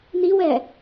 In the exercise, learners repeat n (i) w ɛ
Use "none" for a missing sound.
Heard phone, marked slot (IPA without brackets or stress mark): i